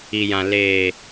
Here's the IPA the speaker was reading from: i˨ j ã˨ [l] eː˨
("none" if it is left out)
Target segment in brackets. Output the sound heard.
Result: l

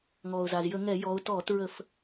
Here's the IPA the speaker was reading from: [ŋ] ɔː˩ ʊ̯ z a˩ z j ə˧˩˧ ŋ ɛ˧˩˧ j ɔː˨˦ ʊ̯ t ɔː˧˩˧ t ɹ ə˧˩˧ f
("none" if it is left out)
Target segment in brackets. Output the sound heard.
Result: ŋ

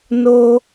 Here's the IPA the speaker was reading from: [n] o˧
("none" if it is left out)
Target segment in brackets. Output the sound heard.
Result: n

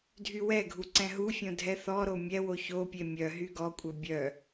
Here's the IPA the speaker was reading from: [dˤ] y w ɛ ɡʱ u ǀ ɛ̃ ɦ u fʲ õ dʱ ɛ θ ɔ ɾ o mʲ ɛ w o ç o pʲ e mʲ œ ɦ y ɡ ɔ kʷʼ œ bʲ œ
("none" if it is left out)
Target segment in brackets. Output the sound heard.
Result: dʱ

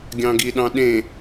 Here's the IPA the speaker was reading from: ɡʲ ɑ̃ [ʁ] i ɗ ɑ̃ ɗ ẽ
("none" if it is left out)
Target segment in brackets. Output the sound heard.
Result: ɡ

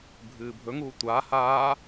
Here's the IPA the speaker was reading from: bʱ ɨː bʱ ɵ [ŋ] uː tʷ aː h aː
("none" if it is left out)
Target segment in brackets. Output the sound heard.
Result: ŋ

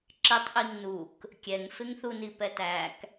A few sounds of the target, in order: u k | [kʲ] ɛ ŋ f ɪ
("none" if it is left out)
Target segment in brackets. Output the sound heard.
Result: kʲ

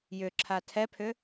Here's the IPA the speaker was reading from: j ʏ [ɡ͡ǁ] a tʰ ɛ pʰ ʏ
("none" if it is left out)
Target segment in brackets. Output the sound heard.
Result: ǁʰ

